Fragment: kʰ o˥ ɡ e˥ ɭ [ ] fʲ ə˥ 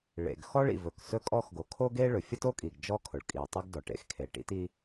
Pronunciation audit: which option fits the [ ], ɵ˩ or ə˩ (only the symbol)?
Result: ɵ˩